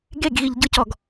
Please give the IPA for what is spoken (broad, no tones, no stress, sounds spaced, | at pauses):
ɡ e ɡ ɣ i ʎ ɟ ɯ c ɔ ɡ